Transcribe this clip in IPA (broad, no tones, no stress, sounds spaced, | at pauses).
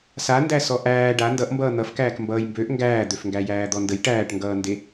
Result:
s a n d æ s ɔ ʔ æː ɖ a n d ʌ ʔ m b ʌː n̪ ʌ f k æː k m b ʌː j m b ø ʔ ŋ ɡ æː d̪ ø f ŋ ɡ æ j æː d̪ ɔ n d ə j ʈ æː ʈ ŋ ɡ ʌː n d e